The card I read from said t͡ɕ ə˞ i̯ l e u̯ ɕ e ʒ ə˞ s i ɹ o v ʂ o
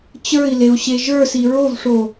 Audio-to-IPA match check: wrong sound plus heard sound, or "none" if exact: none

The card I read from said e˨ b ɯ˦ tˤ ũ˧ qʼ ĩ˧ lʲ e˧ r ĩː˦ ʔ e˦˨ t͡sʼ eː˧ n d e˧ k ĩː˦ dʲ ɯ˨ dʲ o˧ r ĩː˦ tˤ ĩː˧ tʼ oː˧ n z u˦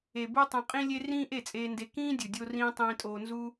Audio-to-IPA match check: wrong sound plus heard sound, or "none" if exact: none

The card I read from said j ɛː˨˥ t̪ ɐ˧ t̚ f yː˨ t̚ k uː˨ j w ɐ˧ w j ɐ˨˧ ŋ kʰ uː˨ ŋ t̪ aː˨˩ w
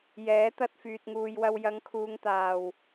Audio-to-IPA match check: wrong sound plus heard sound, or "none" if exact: k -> ŋ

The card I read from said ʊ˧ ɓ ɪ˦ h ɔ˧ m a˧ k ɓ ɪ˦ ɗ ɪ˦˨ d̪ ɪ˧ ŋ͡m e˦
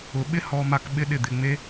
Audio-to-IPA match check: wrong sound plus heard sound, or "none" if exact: none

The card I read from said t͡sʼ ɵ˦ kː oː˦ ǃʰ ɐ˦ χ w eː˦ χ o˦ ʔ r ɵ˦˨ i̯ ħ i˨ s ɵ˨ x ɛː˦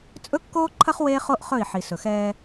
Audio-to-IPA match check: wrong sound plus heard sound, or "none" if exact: r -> χ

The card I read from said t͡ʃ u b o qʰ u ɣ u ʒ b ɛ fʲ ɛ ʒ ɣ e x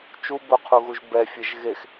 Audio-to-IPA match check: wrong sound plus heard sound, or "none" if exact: none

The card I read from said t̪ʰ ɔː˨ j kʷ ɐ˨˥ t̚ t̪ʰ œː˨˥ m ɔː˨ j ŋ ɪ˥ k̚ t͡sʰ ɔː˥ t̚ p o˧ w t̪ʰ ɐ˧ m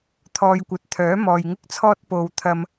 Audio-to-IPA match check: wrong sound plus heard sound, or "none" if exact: none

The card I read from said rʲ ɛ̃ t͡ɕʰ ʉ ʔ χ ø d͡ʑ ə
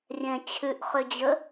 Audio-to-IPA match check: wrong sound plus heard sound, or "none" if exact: none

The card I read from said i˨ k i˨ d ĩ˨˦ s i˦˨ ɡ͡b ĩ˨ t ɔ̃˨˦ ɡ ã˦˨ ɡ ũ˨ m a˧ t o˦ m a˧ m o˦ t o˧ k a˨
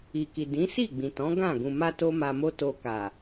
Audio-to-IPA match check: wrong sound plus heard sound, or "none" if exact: none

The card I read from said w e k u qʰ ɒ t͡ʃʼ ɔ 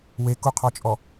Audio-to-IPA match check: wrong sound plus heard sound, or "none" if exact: none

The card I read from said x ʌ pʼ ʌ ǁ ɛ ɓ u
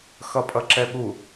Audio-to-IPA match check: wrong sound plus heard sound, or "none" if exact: none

